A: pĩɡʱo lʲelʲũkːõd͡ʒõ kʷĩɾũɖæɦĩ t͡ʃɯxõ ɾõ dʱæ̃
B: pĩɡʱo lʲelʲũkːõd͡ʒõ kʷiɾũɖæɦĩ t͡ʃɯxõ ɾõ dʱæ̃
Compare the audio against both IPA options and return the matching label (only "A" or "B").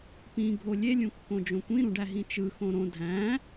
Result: A